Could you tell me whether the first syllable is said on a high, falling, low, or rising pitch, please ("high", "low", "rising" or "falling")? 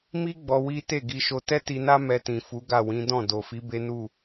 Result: high